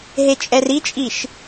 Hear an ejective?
yes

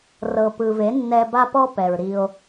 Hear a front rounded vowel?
no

